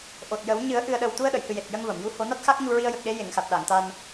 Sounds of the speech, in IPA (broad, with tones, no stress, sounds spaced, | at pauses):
ʔ o˨˩ t̚ j ə˨˩˦ w ɲ ɨ˨˩˦ ə̯ ʔ ɨ˨˩ ə̯ ɗ ə˨˩ w t̪ u˧ ə̯ ɗ ə˨˩˨ j h ɨ˨˩ j e˨˩ t̚ j ə˧ ŋ v ə˨˩˨ m j u˧˥ h o˨˩˦ n a˦˥ t̚ x a˦˥ k̚ ɲ u˧ ɹ i˧ ə̯ j ə˨˩ k̚ ɗ e˧˥ j e˨˩˨ ŋ x a˨˩ t̚ ɗ a˨˩˨ ŋ t̪ a˧ n